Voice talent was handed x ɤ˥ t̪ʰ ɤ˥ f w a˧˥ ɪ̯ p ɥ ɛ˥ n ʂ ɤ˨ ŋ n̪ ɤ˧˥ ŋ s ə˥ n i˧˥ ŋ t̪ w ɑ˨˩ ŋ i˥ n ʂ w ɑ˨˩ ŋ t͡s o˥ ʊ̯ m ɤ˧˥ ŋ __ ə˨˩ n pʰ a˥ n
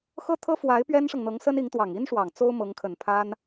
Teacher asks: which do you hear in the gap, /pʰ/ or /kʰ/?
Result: kʰ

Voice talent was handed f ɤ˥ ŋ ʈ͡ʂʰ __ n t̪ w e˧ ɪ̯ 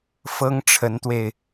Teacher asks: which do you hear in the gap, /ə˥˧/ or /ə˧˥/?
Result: ə˧˥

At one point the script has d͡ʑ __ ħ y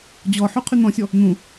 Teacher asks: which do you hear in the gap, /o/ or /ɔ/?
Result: ɔ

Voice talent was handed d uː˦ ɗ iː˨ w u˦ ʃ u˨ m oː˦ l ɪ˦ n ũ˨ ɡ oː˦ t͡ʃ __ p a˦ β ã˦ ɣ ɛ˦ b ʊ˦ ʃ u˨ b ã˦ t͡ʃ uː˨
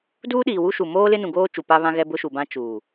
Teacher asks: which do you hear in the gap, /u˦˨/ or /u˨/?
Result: u˨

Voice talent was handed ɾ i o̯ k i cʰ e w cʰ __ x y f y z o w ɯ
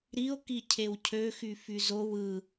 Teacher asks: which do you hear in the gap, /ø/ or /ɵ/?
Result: ø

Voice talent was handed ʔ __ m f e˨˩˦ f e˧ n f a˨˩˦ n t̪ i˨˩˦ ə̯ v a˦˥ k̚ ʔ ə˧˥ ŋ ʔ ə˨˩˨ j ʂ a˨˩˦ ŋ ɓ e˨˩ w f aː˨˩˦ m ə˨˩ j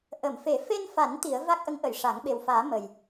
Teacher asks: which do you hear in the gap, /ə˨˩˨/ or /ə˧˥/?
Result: ə˨˩˨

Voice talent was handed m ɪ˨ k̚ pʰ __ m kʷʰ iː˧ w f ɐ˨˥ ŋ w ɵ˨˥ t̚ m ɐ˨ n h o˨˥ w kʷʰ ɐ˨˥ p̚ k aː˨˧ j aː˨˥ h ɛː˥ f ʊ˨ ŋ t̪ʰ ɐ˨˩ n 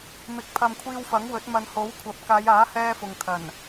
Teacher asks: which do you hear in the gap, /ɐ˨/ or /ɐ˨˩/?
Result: ɐ˨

